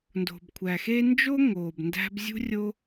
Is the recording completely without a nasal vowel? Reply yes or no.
yes